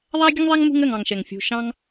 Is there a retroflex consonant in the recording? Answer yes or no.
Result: no